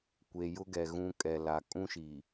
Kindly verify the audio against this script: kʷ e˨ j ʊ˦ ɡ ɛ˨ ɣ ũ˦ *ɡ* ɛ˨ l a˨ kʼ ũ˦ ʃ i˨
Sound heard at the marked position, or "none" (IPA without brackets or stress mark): kʼ